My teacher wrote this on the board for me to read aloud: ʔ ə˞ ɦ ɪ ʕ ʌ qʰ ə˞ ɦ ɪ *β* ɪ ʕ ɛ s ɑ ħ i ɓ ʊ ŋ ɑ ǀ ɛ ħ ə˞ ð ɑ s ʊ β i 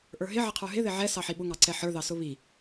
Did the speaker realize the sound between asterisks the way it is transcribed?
no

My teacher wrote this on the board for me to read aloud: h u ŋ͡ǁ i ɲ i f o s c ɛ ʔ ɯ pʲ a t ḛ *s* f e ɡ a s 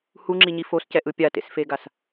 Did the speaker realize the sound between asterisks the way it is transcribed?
yes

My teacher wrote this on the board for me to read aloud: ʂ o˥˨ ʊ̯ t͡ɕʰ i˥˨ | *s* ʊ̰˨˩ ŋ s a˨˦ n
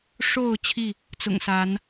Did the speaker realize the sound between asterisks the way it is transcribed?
no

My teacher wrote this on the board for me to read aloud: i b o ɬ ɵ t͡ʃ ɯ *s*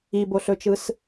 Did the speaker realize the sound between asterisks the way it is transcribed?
yes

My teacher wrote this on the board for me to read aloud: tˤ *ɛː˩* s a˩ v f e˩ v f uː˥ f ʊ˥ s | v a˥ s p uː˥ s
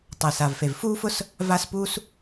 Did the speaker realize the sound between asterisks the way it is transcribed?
no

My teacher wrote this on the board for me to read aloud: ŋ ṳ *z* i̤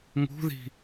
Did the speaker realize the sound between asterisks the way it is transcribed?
no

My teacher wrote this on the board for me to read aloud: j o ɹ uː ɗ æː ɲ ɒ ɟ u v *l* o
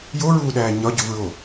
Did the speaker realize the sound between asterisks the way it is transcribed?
no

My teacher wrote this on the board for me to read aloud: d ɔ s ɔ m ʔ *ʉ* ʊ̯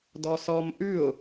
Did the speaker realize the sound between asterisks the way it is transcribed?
yes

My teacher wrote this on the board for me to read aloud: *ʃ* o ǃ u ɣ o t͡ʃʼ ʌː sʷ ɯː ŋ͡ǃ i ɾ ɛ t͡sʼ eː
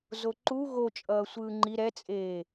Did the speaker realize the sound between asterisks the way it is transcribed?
no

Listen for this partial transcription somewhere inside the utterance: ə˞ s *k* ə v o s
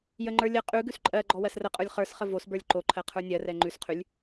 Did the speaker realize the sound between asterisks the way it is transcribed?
no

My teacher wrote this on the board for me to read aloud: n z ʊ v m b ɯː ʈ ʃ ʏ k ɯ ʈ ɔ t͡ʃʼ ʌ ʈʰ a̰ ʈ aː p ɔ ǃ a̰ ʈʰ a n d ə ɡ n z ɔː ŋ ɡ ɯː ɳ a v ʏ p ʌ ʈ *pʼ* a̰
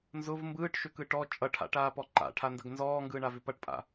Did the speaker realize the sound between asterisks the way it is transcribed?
yes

